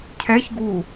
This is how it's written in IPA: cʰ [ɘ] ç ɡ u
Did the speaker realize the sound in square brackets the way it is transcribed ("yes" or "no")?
no